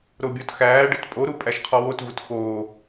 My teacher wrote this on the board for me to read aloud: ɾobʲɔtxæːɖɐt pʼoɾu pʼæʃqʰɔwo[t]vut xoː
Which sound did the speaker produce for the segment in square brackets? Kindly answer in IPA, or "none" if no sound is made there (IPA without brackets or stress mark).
t